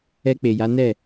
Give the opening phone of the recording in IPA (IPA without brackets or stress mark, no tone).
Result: ɛ